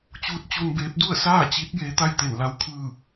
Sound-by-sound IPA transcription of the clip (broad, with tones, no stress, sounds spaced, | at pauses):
t͡ɕ uː˧˥ t̚ t͡ɕ u˧ n b eː˧˥ p̚ d u˥˨ ə̯ s aː˥˨ t͡ɕ i˧˥ t̚ j eː˧˥ t̪ a˥˨ j t̪ e˧˩ n l a˧˥ w kʰ ɯː˥˨